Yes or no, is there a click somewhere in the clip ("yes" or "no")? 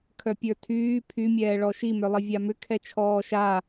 no